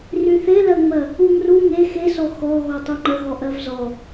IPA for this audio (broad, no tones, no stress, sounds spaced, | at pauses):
r y θ e l ɜ ŋ͡m ɜ | u ŋ r u ŋ e x e s ɔ x ɔ ɣ ɔ tˤ u ŋ͡ǃ ə ɣ ɔ ʔ ɜ v z ɔ